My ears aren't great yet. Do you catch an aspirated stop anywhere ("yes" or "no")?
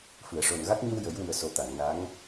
no